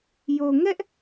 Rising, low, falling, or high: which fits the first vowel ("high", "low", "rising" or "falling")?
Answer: low